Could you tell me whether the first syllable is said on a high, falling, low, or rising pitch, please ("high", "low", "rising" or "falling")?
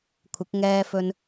rising